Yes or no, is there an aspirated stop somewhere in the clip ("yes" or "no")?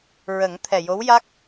yes